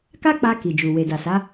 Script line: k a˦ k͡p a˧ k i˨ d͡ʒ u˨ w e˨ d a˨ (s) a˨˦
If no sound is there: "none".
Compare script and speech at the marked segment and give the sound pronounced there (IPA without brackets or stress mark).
s